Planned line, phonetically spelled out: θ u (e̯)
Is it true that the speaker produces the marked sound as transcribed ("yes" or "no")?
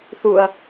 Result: no